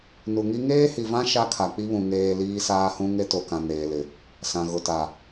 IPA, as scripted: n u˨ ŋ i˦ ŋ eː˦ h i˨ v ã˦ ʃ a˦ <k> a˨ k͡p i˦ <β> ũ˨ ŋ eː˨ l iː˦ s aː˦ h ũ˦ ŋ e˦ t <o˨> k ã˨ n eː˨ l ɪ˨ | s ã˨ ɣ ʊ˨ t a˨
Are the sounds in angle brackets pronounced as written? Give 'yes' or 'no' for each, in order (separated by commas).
no, yes, yes